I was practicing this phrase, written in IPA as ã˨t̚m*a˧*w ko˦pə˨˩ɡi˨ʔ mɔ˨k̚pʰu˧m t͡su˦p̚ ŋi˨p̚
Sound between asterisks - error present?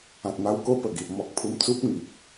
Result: no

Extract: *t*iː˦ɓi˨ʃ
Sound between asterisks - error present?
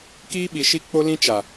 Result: yes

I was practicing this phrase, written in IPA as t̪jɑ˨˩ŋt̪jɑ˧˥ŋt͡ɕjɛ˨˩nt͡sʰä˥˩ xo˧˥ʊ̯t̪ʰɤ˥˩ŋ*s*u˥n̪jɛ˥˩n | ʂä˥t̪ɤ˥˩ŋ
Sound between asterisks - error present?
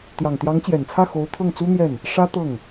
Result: yes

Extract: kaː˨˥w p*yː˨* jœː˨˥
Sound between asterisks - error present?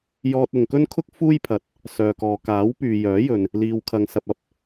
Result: no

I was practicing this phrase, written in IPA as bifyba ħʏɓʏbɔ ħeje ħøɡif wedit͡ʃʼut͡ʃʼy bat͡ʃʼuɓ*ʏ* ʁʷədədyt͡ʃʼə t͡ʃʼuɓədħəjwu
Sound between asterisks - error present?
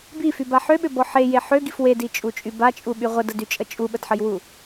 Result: yes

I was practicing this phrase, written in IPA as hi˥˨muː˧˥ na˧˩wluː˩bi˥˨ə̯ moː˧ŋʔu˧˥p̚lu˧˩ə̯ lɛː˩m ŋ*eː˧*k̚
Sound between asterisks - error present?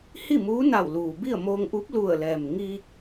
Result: yes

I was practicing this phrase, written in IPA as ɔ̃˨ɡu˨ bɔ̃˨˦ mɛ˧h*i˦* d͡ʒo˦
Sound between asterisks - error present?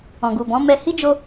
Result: no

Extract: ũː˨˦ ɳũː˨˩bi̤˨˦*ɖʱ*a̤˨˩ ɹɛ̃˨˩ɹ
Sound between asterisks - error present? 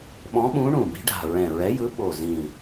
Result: no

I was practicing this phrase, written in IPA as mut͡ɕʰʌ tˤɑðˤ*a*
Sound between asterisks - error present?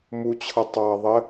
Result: yes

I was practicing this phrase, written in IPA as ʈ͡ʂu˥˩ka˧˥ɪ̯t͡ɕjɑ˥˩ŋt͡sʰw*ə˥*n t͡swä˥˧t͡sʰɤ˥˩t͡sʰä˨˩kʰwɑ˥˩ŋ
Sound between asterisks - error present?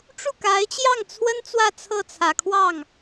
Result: no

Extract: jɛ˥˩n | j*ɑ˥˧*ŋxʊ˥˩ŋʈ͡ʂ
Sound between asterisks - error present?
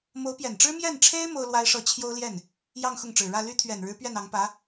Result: no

